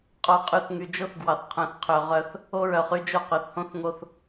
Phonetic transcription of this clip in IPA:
qʼ o˨ qʼ y˨ θ ŋ y˨ d͡ʒ o˦ θ ɡ w ɑ˨ θ qʰ œ̃˨ θ qʰ ø˨ ʁ œ˦ θ | o˦ ɹ œ˨ χ y˦ d͡ʒ o˦˨ q ø˨ θ h õ˦ θ ŋ o˦ θ

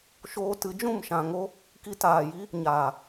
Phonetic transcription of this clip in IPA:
ʃ oː˧ t ɨ˨˦ d͡ʒ ũ˦˨ m ʃ ã˨ ŋ o˧ | k i˧ t aː˨ j i˦ | ɲ aː˨

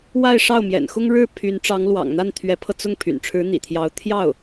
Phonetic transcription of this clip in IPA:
w a˥˧ ɪ̯ ʂ ɑ˥˩ ʊ̯ m j ɛ̰˨˩ n x ʊ˥ ŋ ɻ ɻ̩˥˩ pʰ y˧˥ n ʈ͡ʂ ɑ˧˥ ŋ l w ɑ̰˨˩ ŋ n̪ a˥˩ n t̪ʰ ɥ ɛ˧˥ pʰ ɤ˧ t͡s ʊ˥˩ ŋ pʰ y̰˨˩ n ʈ͡ʂʰ ɻ̩˧˥ n̪ ḭ˨˩ t̪ʰ j ɑ˧˥ ʊ̯ t̪ʰ j ɑ˥˩ ʊ̯

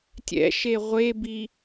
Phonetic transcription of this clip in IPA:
tʲ ɛ̰ ʃ e ʁʷ e b i

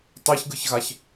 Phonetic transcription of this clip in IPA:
tˤ e ç ɡ ɯ ç ɣ a ç

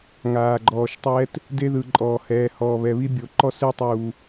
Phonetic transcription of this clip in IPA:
ŋ aː˨ ɡ͡ǃ ɔː˨ ʃ tˤ ɛː˦ t | d e˦ ð ɯ˨ ǃʼ ɔː˨ h ɛː˨ h ɔː˨ β ɛ˨ β i˦ bʲ o˨ ǃ ɔ˦ s e˦ tˤ uː˨

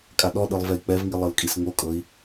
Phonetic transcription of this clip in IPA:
kʼ a ɗ ɔ ɗ ɯ lˠ v ɛ i̯ k͡p ɛ v ŋ i lˠ ɤ l kʼ i s ŋ o kʼ ɤ i̯

